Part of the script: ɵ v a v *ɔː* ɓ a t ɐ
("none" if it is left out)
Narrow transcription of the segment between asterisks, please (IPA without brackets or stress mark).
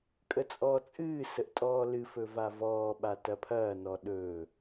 ɔː